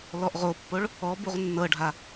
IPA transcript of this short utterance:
l ɔ ʔ ʁ o pː o ɭ | ɔ b u ʁ nː ɤ ɖʱ a

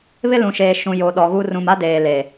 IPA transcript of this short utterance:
β ɪ˦ l ũ˨ ʃ eː˨ ʃ ũ˨ j o˨ ɗ ɔ˨ ɣ u˦ r ũ˨ m a˦ d eː˨ l e˨

